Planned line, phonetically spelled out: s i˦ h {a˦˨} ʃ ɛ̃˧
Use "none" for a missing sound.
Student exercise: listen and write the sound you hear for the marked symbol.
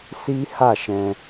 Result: a˦˨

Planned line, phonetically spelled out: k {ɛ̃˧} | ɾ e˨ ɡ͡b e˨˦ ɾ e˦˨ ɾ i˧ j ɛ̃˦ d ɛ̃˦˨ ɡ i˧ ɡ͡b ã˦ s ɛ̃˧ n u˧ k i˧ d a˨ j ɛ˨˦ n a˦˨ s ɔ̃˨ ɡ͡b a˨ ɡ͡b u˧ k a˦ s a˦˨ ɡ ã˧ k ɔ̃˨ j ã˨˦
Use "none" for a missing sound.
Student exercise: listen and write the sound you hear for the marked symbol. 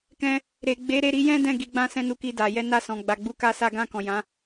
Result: ɛ̃˧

